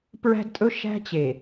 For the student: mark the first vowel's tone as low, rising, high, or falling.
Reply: high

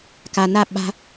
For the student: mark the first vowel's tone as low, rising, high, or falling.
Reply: low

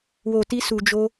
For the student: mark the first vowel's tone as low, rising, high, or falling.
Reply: low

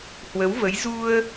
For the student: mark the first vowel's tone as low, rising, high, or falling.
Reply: rising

